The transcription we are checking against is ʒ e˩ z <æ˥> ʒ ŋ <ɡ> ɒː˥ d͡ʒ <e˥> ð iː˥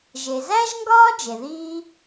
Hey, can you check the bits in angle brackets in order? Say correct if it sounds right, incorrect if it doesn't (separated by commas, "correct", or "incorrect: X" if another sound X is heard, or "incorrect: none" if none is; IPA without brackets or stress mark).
correct, correct, incorrect: e˩